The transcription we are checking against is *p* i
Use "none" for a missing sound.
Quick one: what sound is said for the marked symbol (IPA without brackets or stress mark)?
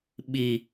ɓ